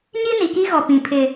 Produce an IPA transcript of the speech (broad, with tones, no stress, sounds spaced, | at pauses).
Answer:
ɲ i˦ n i˨ k i˦ ɣ ɔ˨ p ĩ˨ pʰ ɪ˨